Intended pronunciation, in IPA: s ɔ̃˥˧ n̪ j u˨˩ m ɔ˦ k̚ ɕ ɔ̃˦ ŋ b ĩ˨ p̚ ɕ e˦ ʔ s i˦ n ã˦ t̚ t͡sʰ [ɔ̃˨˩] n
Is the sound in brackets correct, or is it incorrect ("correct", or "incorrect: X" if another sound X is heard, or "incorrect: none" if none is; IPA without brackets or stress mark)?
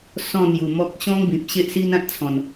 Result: correct